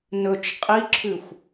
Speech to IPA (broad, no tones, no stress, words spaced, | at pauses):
nɵt͡ʃ qʼiǁʰʉxʷ